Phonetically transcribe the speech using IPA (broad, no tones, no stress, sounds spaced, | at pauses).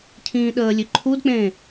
cʰ ĩː ɗ əː lʲ ø ǃʰ u d k͡p ẽː